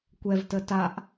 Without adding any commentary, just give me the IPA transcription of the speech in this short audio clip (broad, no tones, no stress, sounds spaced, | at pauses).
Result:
kʷ ɛ v t ə t a ʔ